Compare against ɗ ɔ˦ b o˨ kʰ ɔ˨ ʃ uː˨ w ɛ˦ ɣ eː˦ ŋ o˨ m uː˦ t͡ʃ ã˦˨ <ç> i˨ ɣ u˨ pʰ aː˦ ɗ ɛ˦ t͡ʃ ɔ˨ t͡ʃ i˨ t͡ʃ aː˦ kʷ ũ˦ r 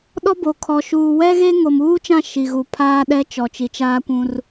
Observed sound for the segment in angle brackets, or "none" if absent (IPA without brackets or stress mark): ʃ